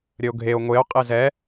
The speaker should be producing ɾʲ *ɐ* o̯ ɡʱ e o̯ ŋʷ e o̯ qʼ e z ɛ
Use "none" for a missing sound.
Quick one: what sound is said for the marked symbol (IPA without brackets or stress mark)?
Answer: ə